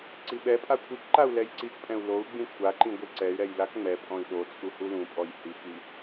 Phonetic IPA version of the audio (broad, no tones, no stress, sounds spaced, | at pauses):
ǀ i ɓ ɛ pʼ a kʷʰ i k ǃ a u̯ l ɛ j ǀ i k pʼ ɛ̃ u̯ l o u̯ ɡ͡b ĩ kʷʰ a ǃ ĩ ɡʷ i ǀ ɛ y̯ ɾ ɛ j l a k ŋ͡m ɛ pʼ ɔ̃ i̯ ɗ o t͡sʼ u h u l ũ pʼ ɔ j h i k i